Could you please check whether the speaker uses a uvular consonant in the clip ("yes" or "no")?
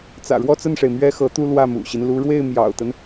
no